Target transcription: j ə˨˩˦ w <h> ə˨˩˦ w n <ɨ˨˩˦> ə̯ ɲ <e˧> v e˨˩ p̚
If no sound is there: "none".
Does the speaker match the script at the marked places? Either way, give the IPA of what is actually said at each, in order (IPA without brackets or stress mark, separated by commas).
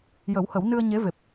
h, ɨ˧, e˧˥